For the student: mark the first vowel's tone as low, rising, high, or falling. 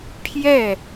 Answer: falling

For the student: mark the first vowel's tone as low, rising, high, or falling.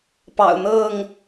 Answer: low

